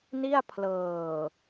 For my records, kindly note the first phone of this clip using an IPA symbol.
n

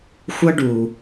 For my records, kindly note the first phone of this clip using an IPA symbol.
xʷ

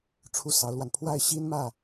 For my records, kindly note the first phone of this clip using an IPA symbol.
ʈ͡ʂʰ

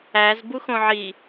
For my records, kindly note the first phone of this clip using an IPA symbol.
æ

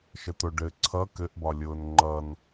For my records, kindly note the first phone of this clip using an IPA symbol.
ʃ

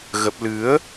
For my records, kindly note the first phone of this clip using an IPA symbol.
ɣ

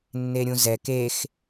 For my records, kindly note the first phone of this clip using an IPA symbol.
nː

